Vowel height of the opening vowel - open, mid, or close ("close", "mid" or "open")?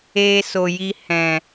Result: mid